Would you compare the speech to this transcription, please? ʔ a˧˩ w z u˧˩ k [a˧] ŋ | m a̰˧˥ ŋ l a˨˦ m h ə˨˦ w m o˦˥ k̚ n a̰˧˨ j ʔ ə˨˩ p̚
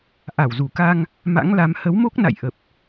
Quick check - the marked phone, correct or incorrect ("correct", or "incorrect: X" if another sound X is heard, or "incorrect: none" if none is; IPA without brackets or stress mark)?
correct